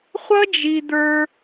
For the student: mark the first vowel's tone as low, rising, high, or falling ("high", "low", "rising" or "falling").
high